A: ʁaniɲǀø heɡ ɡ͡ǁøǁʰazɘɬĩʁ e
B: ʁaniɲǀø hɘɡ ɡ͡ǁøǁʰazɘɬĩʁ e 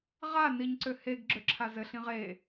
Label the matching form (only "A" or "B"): A